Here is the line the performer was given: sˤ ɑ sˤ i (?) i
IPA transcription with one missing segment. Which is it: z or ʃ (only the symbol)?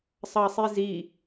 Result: z